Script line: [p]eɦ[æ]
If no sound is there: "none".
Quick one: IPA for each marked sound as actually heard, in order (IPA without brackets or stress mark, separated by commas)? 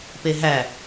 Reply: p, æ